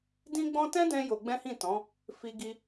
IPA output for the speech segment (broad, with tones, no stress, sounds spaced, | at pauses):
d ĩ˦ ɡ͡b ɔ̃˦ t ɛ̃˦ d ɛ̃˧ j o˧ ɡ͡b ɛ̃˦ h ĩ˦˨ t ɔ̃˨˦ | f i˧ ɡ i˧